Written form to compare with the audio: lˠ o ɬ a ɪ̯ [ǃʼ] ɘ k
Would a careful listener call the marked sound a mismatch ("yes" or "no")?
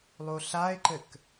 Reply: yes